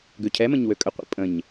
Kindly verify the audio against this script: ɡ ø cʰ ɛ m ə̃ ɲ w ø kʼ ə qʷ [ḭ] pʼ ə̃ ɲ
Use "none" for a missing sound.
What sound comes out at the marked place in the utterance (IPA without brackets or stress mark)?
ḭ